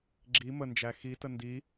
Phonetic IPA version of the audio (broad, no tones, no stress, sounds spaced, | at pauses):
ɡ͡ǁ i m ə n d͡ʒ æ x i t ə n d i